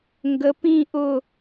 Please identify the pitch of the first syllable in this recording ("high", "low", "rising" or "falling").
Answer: rising